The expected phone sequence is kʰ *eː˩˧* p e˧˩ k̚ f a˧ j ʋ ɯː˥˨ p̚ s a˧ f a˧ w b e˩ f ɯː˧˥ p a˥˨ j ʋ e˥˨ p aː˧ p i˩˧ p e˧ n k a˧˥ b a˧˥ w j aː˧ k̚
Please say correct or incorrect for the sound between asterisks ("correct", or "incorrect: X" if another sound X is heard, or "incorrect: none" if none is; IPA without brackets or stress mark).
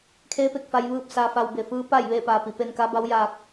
incorrect: eː˧˥